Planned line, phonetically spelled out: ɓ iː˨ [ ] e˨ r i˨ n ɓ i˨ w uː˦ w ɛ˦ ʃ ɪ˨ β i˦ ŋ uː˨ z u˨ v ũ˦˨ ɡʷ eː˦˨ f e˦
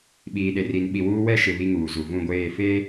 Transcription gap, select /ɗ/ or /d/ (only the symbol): ɗ